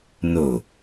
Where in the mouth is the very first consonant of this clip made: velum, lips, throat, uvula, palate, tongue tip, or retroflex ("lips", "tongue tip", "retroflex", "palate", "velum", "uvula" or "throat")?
tongue tip